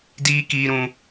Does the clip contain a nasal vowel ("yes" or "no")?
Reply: yes